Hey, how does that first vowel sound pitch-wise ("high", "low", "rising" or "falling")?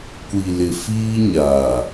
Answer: low